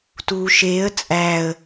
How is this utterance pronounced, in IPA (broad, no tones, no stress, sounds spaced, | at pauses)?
t uː ʃ eː ə̯ t͡sʼ æː ə̯